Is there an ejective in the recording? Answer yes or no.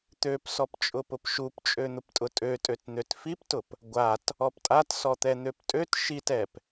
yes